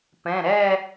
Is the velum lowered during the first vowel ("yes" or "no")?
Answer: yes